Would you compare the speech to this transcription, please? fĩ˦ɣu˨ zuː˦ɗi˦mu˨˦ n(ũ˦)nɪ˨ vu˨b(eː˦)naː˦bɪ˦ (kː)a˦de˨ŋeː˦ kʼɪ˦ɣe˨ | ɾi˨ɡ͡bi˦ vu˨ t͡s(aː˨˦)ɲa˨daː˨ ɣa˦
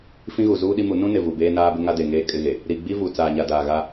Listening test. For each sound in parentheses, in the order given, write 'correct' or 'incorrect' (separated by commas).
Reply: correct, correct, incorrect, incorrect